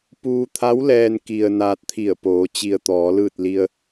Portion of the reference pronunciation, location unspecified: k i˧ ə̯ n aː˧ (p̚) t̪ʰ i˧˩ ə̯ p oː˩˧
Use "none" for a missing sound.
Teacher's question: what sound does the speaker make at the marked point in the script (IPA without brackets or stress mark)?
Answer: t̚